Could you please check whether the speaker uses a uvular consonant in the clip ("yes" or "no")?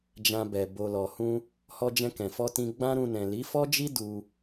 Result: no